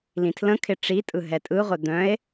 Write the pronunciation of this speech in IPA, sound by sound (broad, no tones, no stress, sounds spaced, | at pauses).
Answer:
l ĩ tʰ l ə̃ kʰ ɪ ʈ͡ʂ i tʼ ɯ ɦ ɛ tʼ ɯ ʁʷ ɛ d̪ œ̃ e̯